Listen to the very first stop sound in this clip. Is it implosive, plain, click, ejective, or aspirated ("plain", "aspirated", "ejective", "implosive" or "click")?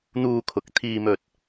aspirated